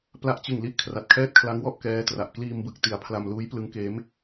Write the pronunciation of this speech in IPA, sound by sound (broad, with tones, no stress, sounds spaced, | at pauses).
p l a˦˥ ʔ t͡ɕ ɯ˨˩ ŋ l i˥˩ ʔ kʰ r a˨˩ t̚ kʰ ɛː˥˩ t̚ kʰ l a˦˥ ŋ w ɔ˥˩ ʔ k ɛː˦˥ t r a˨˩ ʔ k l iː˧ m b ɯ˨˩ k̚ t i˩˦ a̯ pʰ l a˧ m l uː˦˥ j p l ɯ˦˥ ŋ k eː˦˥ m